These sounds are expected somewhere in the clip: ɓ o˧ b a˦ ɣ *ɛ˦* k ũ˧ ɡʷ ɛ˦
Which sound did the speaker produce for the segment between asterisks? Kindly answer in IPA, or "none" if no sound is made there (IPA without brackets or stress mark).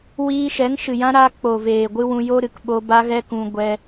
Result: ɛ˦